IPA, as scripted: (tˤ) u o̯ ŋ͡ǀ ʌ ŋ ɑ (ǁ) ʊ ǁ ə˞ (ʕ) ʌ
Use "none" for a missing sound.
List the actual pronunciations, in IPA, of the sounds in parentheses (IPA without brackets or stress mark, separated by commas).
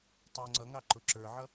tˤ, ǃ, ʕ